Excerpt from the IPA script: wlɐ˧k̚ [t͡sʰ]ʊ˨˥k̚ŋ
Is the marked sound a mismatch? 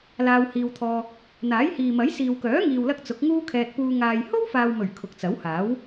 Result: yes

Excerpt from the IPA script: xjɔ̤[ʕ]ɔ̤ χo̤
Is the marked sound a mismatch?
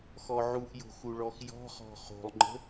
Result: yes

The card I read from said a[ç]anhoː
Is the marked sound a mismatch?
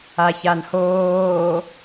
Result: no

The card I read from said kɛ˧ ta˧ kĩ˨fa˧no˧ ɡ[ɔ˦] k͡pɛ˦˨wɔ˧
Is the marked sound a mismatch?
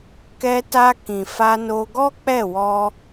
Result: no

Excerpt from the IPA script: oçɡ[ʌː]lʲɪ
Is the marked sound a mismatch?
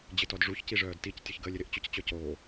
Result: yes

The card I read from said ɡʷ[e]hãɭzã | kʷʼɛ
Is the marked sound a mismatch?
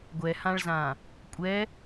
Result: yes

